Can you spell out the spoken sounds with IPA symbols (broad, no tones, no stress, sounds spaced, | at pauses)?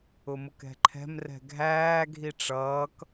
ʊ m ʊ k ɛ̤ ǃʰ ɛ̤ m r ɛ̤ ɡʱ æː ɡʱ i ʈ͡ʂ ʌː k